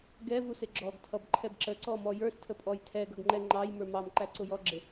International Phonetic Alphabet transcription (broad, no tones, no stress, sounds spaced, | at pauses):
ɡ ɛ v u s ɪ ɡ͡ǁ ɔ ɡ tʰ ʌ b ǃʰ ɛ b ǁ ə ǀ ɔ m ɔ j ə˞ s tʰ ə pʼ ɔ j tʰ ɛ ɡ ʌ ɡ ŋ͡ǃ ɛ ŋ͡ǃ ɑ j m ə˞ m ɑ m ǃ æ ǀ ʊ j ɔ ɡ͡ǁ ɪ